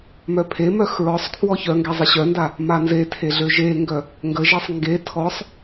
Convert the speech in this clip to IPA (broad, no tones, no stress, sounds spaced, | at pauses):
m œ pʰ e m œ x ɹ ɔ sˤ kʰ w ɔ ç œ ŋ ɡ ɛ zˤ ə ɕ œ n d a | m a n z e tʰ e ɮ ø ʒ e ŋ ɡ œ | ŋ ɡ ə ʒ e sˤ ŋ ɡ e tʰ ɔ sˤ